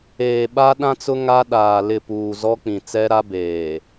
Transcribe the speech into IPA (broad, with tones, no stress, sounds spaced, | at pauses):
eː˨ ɓ a˦ ɗ ã˦ t͡s ʊ˦ ŋ a˦ ɗ aː˨ l ɪ˦˨ p uː˨ z ɔ˦ k͡p ĩ˨ t͡s ɛ˦ ɾ a˦ b eː˨